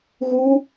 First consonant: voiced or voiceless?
voiced